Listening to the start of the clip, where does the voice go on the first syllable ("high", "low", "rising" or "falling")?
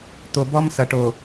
low